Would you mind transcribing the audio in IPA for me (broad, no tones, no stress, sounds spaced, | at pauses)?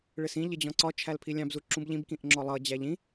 ɭ ɪ s ĩ ʎ ɪ d͡ʑ ɔ̃ ǀ ɒ t͡ʃʰ æ l pʰ i lʲ ɑ̃ b z u ǁ ũ b ʎ ĩ b k ĩ ʔ ŋ͡ǁ ɔ lˠ ʌ d͡ʑ æ ʎ ĩ